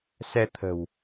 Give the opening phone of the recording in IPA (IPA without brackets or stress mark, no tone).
s